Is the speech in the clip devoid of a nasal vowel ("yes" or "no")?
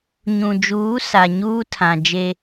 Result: no